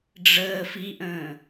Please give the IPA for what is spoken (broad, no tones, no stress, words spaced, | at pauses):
ɖ͡ʐəː fiʔə̃ː